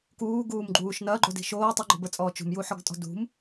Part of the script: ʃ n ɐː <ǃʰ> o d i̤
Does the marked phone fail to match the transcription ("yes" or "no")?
yes